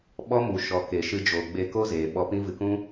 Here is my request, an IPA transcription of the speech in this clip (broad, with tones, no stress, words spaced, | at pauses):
ɓɔ˦mu˨ʃɔ˨ ke˨ʃɨ˧d͡ʒoː˨ ɡ͡be˧ ko˦zeː˨ ɓɔ˧pĩ˦vɨ˧ kũ˦